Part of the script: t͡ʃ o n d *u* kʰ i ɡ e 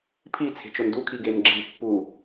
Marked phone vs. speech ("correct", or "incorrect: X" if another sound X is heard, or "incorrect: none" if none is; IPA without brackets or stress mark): correct